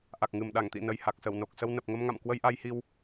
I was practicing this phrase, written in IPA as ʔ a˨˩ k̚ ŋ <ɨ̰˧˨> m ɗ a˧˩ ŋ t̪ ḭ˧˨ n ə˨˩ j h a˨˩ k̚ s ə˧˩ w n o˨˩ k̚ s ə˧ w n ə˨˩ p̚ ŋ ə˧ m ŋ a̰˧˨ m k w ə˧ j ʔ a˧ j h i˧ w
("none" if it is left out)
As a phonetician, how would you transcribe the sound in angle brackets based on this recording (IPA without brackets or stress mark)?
ɨ˨˩